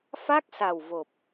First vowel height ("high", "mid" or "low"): low